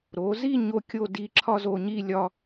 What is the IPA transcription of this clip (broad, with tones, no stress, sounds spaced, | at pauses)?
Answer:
ɾ o˩˧ z i˥˧ ɲ o˥ kʲ o˥ d i˧ ǁʰ ɒ˥ z o˧ ɲ i˥˧ lʲ ɒ˥